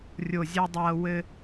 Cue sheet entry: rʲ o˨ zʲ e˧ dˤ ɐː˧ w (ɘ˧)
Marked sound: correct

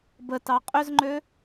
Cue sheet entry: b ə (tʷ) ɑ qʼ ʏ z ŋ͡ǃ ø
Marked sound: incorrect: t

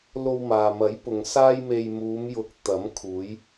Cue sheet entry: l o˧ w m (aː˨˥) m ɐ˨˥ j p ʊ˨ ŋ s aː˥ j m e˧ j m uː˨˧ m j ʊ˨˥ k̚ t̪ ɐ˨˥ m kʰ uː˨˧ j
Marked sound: incorrect: aː˨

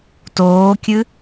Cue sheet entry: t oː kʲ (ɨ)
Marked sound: correct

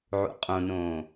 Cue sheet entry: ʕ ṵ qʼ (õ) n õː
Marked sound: correct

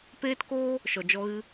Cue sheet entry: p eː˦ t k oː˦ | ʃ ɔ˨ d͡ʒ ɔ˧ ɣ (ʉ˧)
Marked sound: incorrect: ɨ˧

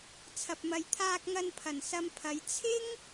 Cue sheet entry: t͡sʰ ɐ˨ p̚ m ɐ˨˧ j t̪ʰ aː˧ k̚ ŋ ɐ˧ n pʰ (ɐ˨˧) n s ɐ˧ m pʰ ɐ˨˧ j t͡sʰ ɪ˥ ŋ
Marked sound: incorrect: ɐ˨˩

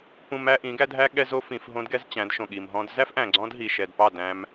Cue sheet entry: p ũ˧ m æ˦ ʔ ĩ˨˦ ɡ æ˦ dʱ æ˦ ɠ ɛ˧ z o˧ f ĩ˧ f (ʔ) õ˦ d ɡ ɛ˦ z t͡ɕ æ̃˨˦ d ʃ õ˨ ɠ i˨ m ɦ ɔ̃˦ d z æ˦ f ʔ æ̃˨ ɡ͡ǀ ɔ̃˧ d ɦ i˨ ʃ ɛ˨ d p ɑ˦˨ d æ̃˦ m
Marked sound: incorrect: ɦ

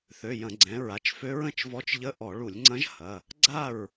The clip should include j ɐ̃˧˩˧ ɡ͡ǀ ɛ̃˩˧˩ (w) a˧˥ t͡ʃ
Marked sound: incorrect: ɹ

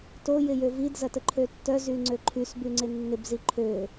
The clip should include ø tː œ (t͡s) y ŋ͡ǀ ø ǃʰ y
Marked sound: incorrect: z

